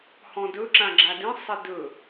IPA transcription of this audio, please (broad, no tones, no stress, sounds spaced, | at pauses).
h ɔ̃ d ɵ ǁ ã ɡ͡ǁ a d ĩ sˤ e d ɵ